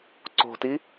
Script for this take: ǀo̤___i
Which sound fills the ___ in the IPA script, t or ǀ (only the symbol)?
t